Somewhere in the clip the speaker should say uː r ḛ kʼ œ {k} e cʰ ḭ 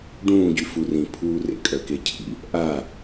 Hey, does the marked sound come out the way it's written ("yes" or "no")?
yes